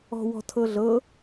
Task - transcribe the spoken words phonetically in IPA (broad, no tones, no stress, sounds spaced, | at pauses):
ɔ̤ w ɔ̤ tʰ ɤ ɮ ɤ